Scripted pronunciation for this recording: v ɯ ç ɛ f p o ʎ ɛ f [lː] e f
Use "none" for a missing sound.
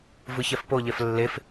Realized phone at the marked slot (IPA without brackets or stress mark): lː